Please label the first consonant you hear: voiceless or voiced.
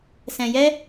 voiceless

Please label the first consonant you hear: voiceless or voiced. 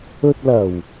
voiceless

